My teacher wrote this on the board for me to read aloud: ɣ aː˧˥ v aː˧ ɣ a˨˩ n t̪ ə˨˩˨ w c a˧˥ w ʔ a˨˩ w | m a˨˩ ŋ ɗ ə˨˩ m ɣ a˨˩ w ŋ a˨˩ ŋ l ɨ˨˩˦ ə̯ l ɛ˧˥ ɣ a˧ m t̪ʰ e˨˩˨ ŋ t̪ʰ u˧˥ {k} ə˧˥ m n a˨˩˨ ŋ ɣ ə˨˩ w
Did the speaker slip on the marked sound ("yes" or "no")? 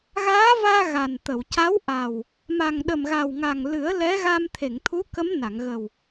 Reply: no